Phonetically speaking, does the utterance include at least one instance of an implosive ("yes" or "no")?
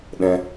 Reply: yes